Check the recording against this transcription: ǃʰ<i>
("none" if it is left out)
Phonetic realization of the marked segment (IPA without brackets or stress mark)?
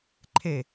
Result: e